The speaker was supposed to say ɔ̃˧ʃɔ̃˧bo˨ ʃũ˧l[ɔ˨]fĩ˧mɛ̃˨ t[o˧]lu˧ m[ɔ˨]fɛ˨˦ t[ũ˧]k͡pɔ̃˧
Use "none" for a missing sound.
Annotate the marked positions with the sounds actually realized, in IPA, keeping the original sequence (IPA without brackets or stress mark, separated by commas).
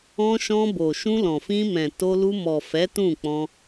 ɔ̃˨, o˧, ɔ˨, ũ˦˨